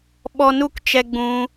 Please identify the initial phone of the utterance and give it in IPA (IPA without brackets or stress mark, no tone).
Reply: ɓ